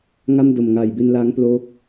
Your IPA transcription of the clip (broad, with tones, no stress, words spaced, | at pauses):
ŋa˥˩m do˨˩mŋaː˨˩jbi˧n laː˦˥ŋploː˦˥k̚